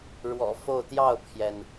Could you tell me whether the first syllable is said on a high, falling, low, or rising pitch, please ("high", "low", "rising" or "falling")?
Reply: low